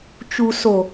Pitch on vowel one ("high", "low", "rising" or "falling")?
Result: low